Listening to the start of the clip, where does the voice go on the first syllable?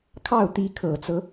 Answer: falling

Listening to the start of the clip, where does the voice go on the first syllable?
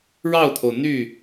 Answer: falling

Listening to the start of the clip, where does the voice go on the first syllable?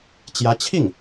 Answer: rising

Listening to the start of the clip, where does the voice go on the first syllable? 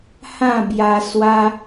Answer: falling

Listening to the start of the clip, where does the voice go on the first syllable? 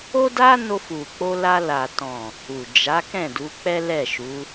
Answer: high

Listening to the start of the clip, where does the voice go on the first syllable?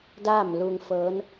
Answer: falling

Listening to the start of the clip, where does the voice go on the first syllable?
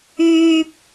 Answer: high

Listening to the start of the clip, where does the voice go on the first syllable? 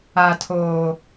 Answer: low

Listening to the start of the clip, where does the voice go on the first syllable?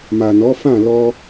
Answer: low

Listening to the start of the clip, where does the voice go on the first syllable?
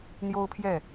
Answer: high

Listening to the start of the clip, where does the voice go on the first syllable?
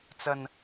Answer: low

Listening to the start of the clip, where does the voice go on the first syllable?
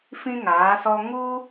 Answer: high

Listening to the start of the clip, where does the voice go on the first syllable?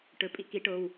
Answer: rising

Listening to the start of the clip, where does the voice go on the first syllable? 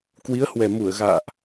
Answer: rising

